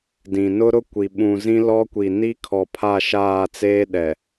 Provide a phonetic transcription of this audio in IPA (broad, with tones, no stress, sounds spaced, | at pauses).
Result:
d ĩ˨ n ʊ˦ ɾ ʊ˦ kʷ i˨ ɓ ũ˨ z ĩ˦ l ɔ˦ kʷ i˨ n i˦ kʰ ɔ˨ pʰ a˦˨ ʃ aː˦˨ t͡s eː˦ ɗ ɛ˨